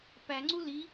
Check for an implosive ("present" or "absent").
absent